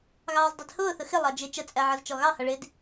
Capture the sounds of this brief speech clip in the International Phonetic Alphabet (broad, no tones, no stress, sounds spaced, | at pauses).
ɣ ɑː z dˤ i d h ʊː θ ə x ɪ lˠ ɑ d͡ʒ ɪ t͡ʃ ə t͡sʼ æ ʕ ʌ z t͡ʃ ɔ ɣ ɑ h ʌ ɭ ɪ d